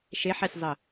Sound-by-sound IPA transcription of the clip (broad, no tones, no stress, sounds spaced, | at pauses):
ʃ e ħ ɛ sʲ zˤ ə